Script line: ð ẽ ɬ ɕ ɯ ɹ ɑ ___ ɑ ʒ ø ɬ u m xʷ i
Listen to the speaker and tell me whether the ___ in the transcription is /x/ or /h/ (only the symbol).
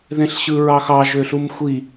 x